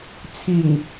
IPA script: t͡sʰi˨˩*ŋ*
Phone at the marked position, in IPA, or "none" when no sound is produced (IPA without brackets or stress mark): ŋ